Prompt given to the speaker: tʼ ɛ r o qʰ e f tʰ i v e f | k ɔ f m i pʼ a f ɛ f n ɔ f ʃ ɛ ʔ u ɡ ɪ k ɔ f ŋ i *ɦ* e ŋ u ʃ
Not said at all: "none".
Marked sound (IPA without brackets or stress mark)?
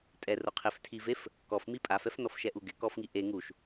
ʔ